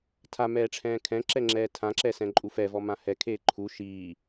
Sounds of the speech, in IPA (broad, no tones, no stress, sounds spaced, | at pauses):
tʰ a m ɛː ʈ͡ʂʰ ɛ̃ː kʰ ɛ̃ ǁ ɛ ŋ͡ǁ ɛː tʰ ã ǁ ɛ s ɛ̃ ǃʼ u f ɛ v ɔ m ã h ɛ kʰ eː ǃʰ u ʃ iː